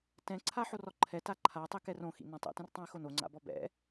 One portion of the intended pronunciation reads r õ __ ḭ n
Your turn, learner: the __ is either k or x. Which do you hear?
x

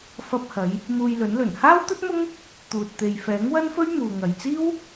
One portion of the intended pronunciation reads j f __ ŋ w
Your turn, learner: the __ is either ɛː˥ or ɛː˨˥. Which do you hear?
ɛː˨˥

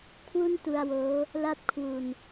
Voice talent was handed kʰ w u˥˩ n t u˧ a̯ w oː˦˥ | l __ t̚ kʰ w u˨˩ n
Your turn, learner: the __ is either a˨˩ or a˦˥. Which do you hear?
a˦˥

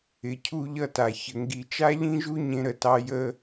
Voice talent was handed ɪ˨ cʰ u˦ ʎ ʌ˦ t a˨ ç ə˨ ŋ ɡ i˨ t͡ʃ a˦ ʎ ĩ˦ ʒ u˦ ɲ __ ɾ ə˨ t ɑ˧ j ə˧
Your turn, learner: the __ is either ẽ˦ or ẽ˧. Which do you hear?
ẽ˧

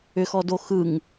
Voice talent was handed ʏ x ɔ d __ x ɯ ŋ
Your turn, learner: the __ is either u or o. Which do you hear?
o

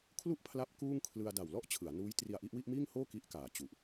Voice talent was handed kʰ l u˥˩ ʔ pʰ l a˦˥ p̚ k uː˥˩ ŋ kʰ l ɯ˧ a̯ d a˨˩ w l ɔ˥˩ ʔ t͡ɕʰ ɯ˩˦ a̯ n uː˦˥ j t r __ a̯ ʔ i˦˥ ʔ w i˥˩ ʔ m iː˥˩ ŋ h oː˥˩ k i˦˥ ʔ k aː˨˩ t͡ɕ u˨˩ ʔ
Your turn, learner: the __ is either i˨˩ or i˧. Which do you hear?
i˧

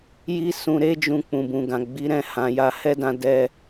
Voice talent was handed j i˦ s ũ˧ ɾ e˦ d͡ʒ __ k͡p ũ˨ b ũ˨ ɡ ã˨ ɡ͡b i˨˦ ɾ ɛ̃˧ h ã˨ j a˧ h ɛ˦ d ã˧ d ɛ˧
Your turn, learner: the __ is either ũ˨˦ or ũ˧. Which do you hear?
ũ˧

